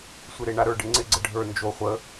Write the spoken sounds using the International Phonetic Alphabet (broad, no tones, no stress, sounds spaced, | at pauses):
sʷ e ɾ e ɳ a ɾ ə˞ ɖ ɪ ŋ͡ǀ ɪ ɡ͡ǀ ə ɖʱ ə˞ n d͡ʒ o χʷ ə